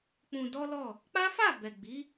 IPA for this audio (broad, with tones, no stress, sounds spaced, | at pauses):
k͡p ũ˧ d ɔ˦ l ɔ˦˨ | k͡p a˦ f a˦˨ b ɛ˨ ɡ͡b i˨˦